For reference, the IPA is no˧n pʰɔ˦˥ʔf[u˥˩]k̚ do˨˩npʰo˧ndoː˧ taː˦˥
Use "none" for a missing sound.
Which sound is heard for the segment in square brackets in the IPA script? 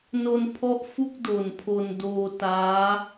u˥˩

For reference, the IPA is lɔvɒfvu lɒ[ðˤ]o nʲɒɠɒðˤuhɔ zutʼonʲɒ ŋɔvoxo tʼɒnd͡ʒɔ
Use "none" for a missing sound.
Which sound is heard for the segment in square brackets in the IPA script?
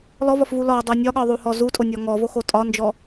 dˤ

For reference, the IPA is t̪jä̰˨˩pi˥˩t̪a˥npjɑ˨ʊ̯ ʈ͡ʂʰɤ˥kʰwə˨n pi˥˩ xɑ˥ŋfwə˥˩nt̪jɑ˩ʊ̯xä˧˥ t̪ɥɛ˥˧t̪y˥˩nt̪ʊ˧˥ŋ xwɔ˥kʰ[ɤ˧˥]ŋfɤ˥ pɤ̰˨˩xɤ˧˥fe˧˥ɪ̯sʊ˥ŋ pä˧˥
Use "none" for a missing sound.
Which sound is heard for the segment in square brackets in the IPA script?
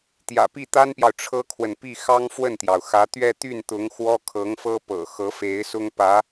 ɤ˧˥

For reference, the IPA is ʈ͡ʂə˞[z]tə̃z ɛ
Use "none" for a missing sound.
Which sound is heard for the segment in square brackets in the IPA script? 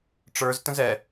z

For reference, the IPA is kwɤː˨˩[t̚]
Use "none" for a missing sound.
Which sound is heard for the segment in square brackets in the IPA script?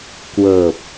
p̚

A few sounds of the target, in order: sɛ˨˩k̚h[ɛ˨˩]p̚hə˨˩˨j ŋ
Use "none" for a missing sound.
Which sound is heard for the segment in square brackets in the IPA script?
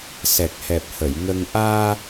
ɛ˨˩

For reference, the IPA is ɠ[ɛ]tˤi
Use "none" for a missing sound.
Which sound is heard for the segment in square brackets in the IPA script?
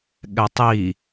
ɛ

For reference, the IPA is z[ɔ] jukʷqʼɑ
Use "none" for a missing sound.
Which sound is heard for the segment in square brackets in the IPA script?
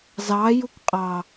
ɑ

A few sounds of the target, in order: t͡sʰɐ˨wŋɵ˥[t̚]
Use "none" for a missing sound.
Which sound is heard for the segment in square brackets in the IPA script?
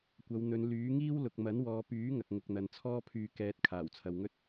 t̚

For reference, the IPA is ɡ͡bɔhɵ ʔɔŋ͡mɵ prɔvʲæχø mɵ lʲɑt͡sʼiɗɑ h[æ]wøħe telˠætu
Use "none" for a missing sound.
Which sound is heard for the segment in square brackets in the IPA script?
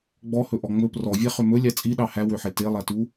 æ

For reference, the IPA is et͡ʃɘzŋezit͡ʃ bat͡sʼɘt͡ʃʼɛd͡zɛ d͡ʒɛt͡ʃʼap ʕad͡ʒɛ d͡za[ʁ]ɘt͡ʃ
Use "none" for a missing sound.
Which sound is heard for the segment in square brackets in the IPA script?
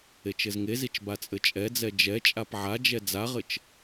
ʁ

